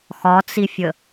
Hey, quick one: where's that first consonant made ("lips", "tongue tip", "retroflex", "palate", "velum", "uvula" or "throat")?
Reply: velum